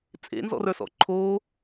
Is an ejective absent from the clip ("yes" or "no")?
no